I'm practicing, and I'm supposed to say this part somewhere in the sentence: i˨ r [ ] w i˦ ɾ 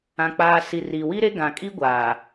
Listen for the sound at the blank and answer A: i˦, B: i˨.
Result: B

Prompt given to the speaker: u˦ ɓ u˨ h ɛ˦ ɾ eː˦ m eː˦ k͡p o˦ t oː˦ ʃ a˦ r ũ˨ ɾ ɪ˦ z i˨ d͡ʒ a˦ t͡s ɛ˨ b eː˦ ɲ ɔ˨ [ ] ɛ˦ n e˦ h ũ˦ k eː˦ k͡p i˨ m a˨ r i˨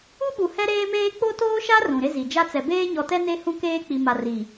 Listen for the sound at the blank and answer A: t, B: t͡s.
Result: A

